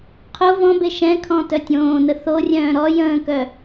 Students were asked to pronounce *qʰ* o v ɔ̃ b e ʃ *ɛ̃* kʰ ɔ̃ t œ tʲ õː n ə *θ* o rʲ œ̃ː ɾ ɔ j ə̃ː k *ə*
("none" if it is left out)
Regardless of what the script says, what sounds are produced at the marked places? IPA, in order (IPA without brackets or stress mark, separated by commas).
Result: qʰ, ɛ̃, θ, œ